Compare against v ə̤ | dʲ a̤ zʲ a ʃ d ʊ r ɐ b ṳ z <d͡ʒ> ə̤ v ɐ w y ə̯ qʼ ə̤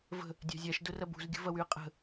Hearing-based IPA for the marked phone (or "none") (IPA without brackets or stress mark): ɡʲ